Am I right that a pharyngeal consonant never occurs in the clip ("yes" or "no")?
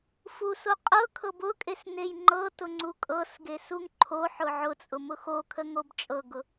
no